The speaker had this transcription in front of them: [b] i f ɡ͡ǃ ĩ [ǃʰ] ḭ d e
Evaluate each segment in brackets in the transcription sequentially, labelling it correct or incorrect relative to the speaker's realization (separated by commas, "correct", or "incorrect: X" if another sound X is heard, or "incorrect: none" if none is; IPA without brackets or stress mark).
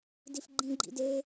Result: incorrect: d, incorrect: ɡ͡ǃ